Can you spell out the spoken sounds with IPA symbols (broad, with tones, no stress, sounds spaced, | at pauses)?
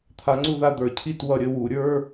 t̪ʰ a˨˦ ŋ͡ǀ u˥˨ ð a˥˨ d̪ ə˞˧˩˧ cʰ i˥˨ t w ʌ˧˩˧ ɾʲ ə˥˨ w u˧˩˧ ɾʲ ə˞˧˥˧